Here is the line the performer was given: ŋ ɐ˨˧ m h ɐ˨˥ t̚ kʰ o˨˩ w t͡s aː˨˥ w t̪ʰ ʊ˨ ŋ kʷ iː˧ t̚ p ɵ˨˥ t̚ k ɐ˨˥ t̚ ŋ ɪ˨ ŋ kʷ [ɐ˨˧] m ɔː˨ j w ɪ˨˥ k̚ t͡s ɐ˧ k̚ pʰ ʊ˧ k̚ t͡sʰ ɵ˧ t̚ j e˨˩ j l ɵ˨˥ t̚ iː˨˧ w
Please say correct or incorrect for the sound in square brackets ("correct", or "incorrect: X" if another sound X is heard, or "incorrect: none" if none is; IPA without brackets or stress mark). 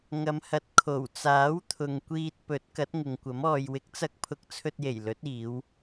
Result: incorrect: ɐ˨˥